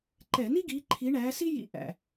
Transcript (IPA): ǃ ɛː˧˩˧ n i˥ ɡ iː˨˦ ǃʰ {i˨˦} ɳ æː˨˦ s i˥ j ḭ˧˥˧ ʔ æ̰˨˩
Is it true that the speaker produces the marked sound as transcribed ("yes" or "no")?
yes